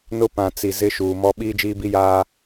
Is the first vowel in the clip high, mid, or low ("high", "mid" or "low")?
high